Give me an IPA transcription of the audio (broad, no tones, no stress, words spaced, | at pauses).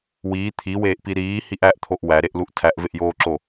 wiː t̪ʰiweːʔpi ɾiːhiʔ æʔt̪ʰoʔ wæɾeʔluʔ tʰæʔveʔjoːǁo